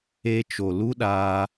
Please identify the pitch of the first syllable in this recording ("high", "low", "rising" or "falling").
high